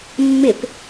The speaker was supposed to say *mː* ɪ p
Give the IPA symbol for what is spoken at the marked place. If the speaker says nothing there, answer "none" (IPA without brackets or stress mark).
mː